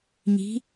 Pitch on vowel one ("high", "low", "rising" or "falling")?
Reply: rising